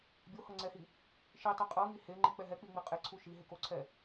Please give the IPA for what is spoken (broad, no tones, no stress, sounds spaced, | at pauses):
bʲ o h ɤ ŋ͡ǀ ɛ h i | ʃ i tˤ i qʼ ɤ ŋ i h e ŋ͡ǃ i k͡p ɛ ɦ ɛ k͡p i ŋ͡m i qʼ e ǀʰ u ʃ i ɦ e k o ǀʰ ɛ